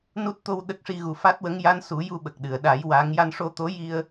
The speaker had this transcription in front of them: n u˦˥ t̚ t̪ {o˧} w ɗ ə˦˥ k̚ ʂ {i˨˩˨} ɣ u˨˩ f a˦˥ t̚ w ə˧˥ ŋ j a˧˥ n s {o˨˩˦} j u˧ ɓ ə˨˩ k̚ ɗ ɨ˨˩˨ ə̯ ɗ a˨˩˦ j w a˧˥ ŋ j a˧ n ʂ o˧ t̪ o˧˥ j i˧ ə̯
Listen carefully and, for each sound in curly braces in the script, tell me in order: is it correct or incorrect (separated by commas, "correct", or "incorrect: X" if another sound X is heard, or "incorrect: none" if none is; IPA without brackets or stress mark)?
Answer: correct, incorrect: i˧, incorrect: u˨˩˦